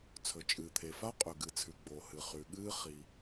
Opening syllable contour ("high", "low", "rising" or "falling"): low